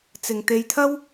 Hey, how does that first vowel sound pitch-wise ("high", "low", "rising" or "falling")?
low